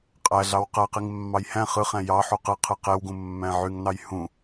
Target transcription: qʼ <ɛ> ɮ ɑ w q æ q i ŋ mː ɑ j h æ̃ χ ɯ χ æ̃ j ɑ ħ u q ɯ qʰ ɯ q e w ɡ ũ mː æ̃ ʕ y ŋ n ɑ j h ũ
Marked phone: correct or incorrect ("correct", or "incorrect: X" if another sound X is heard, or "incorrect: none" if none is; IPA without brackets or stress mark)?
incorrect: æ